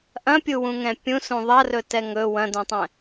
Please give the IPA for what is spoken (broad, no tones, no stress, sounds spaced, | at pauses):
ʔ ɐ̃ pʲ u w ũ ŋ ɛ̃ pʲ ũ s ũ ðˤ ɐ r ɵ t ɛ ŋ ɵ w ɐ̃ d ũ tˤ ɛ̃